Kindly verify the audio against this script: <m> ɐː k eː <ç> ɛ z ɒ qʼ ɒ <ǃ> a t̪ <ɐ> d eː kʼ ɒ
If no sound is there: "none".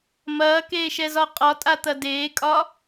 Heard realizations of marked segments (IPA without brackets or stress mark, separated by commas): m, ʃ, tʼ, ɐ